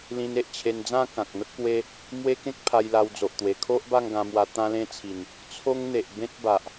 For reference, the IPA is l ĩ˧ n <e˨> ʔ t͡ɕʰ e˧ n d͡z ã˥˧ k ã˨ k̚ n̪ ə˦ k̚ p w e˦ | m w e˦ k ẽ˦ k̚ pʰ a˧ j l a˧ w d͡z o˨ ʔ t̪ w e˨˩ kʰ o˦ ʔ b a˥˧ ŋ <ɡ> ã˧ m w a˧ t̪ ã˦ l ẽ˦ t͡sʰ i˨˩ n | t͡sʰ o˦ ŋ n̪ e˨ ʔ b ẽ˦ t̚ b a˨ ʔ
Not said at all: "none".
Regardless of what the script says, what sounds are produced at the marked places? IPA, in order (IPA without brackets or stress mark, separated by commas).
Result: e˨, ɡ